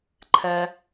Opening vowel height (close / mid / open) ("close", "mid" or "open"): mid